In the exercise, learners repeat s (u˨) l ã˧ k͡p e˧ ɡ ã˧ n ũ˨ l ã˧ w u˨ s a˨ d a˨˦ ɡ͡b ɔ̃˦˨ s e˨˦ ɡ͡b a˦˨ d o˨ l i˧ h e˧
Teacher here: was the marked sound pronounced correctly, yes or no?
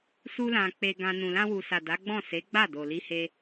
no